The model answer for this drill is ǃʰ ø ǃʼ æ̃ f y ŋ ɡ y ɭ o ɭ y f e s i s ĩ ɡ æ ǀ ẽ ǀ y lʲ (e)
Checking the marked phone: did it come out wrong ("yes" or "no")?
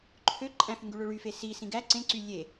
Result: no